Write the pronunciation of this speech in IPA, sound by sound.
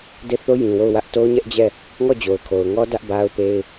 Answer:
d e˦˨ θ o˦ j ĩ˨ w o˦˨ ʊ̯ w ä˦ ʔ t o˦ ʊ̯ ɲ ɛ˦ ʔ d͡ʑ ɛ˦˨ | ŋ ɔ˦˨ d͡ʑ o˨ ʊ̯ kʰ o˨ ʊ̯ ŋ ɔ˦ d ä˦ ʔ b a˦ ʊ̯ p e˦ ɪ̯

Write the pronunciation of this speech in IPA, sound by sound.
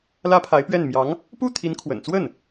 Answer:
l ä˥ pʰ a˧˥ ɪ̯ p ɥ ɛ˥˩ n m j ɑ˧˥ ŋ | p u˥˩ t̪ʰ i˧˥ n kʰ w ə̰˨˩ n t͡s w ə˥˩ n

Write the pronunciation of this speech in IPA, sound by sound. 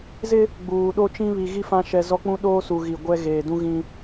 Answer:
z ɪ˦ | ɡ͡b uː˨ ɗ o˦ t͡ʃ ĩ˦ β i˨ ɣ i˦ f ã˦ ʃ ɛ˦ z ɔ˦ k͡p ũ˦ ɗ oː˦ s u˨ ɣ i˨ ɡʷ ɛ˦ ɣ eː˨ d ũ˦ ɣ ĩ˦

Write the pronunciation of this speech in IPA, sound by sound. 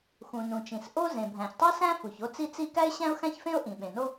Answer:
x ũ˩ n ũ˩ t͡ʃ ĩ˩ s ʔ o˥ z ẽ˩ bʱ æ̃˩ ç tˤ i˥ s æ̃˥ f u˩ ç o˥ t͡s i˥ t͡s i˥ k æ˥ ɪ̯ ɕ æ̃˥ ʊ̯ x æ̃˥ ç f ẽ˥ ʊ̯ ʔ ĩ˩ ɓ ẽ˩ n o˥

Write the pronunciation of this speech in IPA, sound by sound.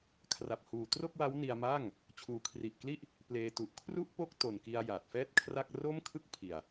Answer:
kʰ r a˨˩ p̚ h uː˨˩ t r o˥˩ k̚ w a˦˥ w n i˧ a̯ m aː˥˩ ŋ | t͡ɕʰ uː˩˦ kʰ r i˨˩ ʔ k l i˥˩ ʔ | p l eː˧ t u˨˩ ʔ kʰ r u˥˩ ʔ p o˥˩ k̚ t o˨˩ n k i˧ a̯ j aː˨˩ t̚ f ɛː˥˩ t̚ kʰ r a˥˩ k̚ r oː˥˩ m kʰ ɯ˥˩ k̚ pʰ i˨˩ a̯

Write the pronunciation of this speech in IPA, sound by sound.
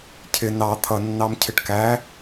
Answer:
cʰ ɪ n ɑ t̪ʰ ʌ nː ɑ m cʰ ɪ ʈ k æ

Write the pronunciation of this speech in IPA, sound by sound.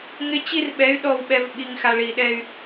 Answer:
ŋ ɪ˦ t͡ɕ i˦ r ɓ ɛ˨˦ y̯ ɗ ɔ˨ w ɓ ɛ˨ v ɓ i˨ ŋ x a˨ ɭ i˨ ɗ ɛ˦ y̯

